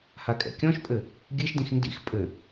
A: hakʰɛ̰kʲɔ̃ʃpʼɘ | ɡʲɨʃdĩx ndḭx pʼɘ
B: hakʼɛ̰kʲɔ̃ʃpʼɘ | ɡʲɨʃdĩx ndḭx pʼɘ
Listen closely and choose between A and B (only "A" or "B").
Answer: B